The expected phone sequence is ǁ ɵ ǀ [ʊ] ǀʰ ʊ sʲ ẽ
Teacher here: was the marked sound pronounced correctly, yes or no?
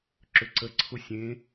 no